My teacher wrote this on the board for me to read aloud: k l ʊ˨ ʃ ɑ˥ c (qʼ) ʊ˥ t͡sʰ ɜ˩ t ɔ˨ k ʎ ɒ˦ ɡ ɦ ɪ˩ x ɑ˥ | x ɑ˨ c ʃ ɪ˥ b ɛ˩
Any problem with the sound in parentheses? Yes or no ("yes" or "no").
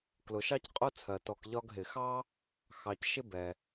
no